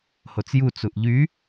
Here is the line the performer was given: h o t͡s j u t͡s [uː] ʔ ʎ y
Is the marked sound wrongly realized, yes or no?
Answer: yes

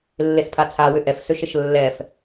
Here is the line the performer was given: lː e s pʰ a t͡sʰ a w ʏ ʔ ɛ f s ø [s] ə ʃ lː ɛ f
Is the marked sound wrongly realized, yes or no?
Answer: yes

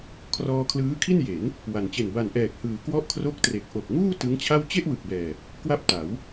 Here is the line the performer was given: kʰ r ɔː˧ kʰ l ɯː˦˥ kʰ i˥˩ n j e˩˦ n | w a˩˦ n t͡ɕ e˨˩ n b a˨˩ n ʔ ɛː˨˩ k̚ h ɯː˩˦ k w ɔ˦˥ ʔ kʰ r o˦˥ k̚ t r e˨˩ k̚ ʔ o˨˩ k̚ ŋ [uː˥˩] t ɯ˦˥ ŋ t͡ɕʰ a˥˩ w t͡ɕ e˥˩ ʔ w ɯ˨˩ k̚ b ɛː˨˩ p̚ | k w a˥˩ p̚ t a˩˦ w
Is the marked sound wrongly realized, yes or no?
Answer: no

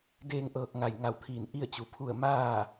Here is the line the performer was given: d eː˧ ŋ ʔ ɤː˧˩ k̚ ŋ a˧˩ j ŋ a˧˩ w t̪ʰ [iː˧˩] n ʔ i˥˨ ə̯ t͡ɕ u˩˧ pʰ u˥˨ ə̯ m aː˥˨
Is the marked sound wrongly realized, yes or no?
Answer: no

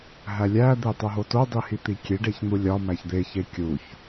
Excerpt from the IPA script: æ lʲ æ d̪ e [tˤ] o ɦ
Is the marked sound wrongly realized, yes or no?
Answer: no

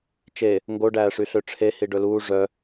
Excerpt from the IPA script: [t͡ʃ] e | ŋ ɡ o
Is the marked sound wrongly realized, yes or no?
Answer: no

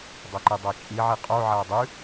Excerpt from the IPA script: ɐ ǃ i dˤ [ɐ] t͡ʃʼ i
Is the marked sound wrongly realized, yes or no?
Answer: yes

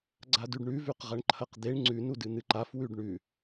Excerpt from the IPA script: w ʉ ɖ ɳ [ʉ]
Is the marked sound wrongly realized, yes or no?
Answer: no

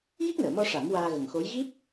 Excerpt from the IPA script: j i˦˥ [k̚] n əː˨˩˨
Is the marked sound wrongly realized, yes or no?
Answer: no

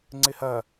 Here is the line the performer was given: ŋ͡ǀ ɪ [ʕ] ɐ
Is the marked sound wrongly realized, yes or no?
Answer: yes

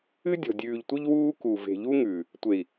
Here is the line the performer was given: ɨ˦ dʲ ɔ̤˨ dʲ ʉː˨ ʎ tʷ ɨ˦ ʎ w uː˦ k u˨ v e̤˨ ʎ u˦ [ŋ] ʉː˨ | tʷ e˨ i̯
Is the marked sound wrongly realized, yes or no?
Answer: no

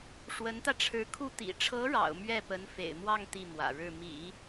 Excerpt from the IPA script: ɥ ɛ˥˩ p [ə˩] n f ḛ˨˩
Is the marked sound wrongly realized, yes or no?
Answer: yes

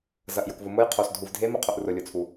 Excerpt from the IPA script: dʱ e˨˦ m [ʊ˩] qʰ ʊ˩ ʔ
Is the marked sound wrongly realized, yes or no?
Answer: yes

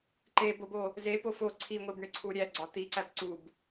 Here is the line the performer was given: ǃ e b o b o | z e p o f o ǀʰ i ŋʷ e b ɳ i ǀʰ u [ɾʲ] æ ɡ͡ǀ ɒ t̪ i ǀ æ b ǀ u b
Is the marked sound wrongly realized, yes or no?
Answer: no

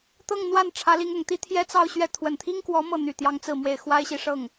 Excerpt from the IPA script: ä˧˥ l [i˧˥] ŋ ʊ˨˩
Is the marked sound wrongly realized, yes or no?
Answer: no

